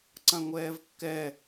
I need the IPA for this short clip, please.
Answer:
ǀɐ̃ŋʷɛːvkːɛ

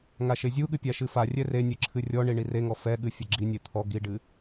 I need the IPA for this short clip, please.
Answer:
ŋaʃezʲuɠɨ pʲaʃɨfarʲɛ renʲɨ ǁʰɨrʲɔɳi ɳireŋɔ fɛɠɨ fʲɐɡ͡ǁinʲe t̪ʰɔ ɡiɖɨ

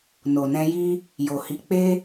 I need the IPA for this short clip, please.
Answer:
no˨nɛ̃˧ji˦ | jo˨hi˨˦k͡pe˦

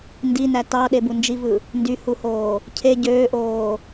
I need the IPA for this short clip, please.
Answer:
ndinæ tɑɗebu nd͡ʒivɯ | ndyhuhoː | cʰe ɟøːʔoː

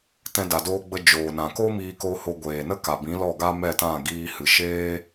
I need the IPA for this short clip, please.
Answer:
tɛ̃˧da˨doː˧ɡ͡bə˧ d͡ʒoː˨nã˨ ko˦miː˧ko˧ho˧ ɡʷeː˨nə˦ka˨ bĩ˨˦lɔ˦˨ ɡa˦mɛ˦˨tã˦˨ ɡiː˧hɨ˨ ʃeː˦

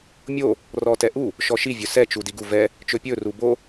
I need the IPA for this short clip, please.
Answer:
mʲo | rɔtɛʔu | ʃɔʃi vʲɵsɛ t͡ʃudiɡu vɛ | t͡ʃɵpʲɵ rubo

